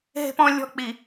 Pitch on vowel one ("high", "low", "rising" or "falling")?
high